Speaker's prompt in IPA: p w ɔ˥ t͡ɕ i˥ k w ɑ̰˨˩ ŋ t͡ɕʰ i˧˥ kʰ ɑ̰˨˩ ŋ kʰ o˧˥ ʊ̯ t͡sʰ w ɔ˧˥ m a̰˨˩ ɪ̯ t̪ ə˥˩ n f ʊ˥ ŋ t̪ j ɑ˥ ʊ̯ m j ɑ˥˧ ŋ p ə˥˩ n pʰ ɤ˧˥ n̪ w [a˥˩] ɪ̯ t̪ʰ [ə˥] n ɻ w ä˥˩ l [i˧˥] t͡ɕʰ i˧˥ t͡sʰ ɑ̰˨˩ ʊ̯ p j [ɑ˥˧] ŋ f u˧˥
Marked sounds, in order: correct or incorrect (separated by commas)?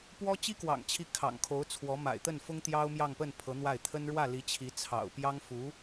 correct, correct, correct, incorrect